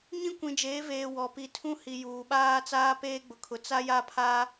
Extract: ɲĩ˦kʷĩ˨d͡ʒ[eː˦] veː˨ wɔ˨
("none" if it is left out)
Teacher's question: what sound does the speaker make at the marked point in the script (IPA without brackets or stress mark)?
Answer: eː˨˦